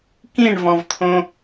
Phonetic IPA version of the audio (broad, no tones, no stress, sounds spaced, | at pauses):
k ĩ ɳ v ɔ̃ v t̪ʰ õ